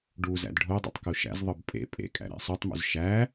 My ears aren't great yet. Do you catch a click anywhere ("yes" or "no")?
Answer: no